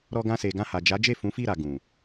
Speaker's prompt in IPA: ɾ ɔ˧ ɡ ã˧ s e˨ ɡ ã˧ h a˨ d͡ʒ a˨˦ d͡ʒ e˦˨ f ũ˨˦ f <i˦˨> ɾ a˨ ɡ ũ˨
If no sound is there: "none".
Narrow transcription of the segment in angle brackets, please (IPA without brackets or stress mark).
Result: i˦˨